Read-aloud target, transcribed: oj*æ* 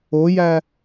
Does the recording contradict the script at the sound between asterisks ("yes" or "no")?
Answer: no